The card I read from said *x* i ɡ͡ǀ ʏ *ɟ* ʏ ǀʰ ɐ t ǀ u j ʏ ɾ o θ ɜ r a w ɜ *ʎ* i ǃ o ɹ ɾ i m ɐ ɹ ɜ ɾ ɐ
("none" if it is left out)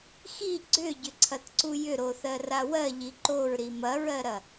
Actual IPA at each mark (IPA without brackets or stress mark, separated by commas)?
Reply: x, ɟ, ʎ